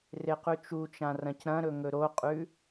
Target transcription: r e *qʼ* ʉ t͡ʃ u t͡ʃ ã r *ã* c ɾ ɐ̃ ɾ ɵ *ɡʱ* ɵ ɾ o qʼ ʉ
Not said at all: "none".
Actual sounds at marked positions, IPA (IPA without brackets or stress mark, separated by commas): q, ɐ̃, ŋ